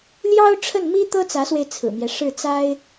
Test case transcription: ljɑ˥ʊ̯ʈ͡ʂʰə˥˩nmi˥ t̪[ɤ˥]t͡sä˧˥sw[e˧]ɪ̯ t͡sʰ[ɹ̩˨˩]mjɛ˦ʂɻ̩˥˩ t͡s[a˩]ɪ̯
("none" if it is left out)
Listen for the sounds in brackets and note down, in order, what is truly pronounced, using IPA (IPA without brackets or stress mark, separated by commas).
ɤ˥, e˧, ɹ̩˨˩, a˥